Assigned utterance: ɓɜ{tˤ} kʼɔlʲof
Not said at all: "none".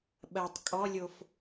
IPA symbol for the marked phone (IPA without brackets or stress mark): tˤ